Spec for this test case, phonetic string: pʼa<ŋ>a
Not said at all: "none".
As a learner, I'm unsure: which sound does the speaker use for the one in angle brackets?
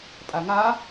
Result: ŋ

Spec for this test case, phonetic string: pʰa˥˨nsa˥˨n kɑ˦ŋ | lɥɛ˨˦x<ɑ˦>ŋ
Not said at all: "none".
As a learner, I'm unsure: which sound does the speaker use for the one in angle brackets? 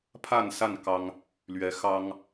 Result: ɑ˦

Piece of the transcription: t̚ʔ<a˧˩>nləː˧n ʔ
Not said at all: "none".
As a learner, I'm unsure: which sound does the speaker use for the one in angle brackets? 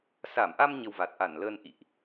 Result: a˧˩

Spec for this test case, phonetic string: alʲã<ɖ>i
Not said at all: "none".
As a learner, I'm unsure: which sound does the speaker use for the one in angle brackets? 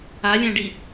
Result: ɖ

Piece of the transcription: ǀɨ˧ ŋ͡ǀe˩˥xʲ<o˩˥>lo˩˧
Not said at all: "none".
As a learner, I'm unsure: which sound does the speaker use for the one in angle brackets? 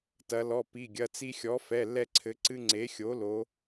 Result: o˩˥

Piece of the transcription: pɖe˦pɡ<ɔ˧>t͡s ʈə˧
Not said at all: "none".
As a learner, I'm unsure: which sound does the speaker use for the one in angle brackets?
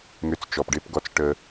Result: ɔ˧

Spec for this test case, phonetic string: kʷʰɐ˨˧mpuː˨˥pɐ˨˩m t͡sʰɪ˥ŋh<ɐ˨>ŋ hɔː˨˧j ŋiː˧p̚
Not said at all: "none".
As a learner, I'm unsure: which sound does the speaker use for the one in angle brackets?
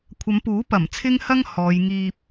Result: ɐ˥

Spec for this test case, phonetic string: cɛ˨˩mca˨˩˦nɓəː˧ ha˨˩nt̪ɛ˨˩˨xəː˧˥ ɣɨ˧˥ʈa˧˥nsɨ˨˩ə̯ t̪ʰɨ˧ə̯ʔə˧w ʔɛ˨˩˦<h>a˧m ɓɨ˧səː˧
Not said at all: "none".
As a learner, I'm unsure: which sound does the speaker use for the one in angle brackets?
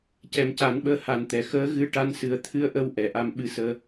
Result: ʔ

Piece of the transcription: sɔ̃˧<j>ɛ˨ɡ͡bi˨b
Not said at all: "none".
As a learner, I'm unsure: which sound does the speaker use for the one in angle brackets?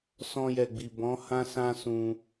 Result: j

